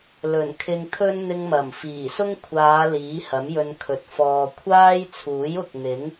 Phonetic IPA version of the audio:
l ɵ˨˩ n kʰ ɪ˧ ŋ t̪ʰ ɵ˥ n n̪ ɪ˧ ŋ m ɐ˨˩ m f iː˨˩ s ʊ˥ ŋ kʷʰ aː˨˧ l iː˨˥ h ɐ˨˥ m j ɵ˧ n kʰ ɵ˨ t̚ f ɔː˨ kʷʰ aː˥ j t͡sʰ uː˨˥ j ʊ˨ k̚ n̪ ɪ˨˥ ŋ

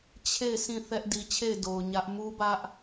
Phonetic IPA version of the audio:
t͡ɕʰ e˦˨ ɪ̯ s ĩ˦˨ θ ɛ˦ ʔ d i˨ t͡ɕʰ e˦˨ ɪ̯ d o˨ ʊ̯ ɲ ä˦ ʔ m u˦ b ä˦ ʔ

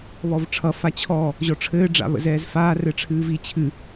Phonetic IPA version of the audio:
β ɔ v ʈ͡ʂʰ ʌ f a t͡ɕʰ ɔ | ʑ ɔ ʈ͡ʂʰ ɘː ɖ͡ʐ a̰ β ə̰ z ɛː z f aː r ɘ ʈ͡ʂʰ ɨː v i t͡ɕʰ ɨ

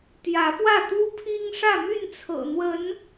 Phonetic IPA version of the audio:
t̪ j ä˨˦ p w ä˥˨ t̪ u˦ pʰ i˦ ŋ ʂ ä˥˨ m y˥˨ n t͡sʰ ɤ̰˨˩ n̪ w ə˨˦ n

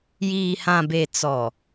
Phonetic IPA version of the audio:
j iː˨ h ã˨ b e˨ t͡s ɔ˨

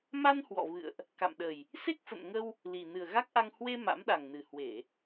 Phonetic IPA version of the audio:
m a˧ n h w ɔ̰˧˨ v ɨ̰˧˨ ə̯ ʔ | k a̰˧˨ m ɗ ə˨˩ j | s e˦˥ k̚ f ə̰˧˨ n ŋ ə˧ w | l i˨˩ n ɨ˨˩ ə̯ ɣ a˦˥ k̚ ʔ a˧ ŋ h w e˧ m a̰˧˥ m ɗ a˨˩ ŋ n ɨ˨˩ h w e˧˩˨

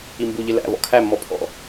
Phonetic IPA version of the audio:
i m b u ʎ ɪ l æ̰ v ɔ̰ kʰ æ mː ɔ pʰ ɔ̰

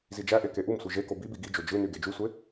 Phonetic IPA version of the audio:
z i d͡ʒ æ ʔ e k e ʔ u m sʷ i ʒ e k o b i b i ɡ i d͡ʒ o d͡ʒ ɯ n y ɡ e d͡ʒ y sʷ e

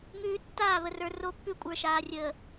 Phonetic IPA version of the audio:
ŋ ʉː˦ tː aː˦˨ β ə˨ r ə˞˨ r o˦ pː ʉ˦ kʷʼ ə˞˨ ʃ aː˨ rʲ əː˨

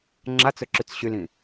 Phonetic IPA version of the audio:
ŋ͡ǁ a t͡s ɵ ǁ y t͡s ɕ y l ĩ

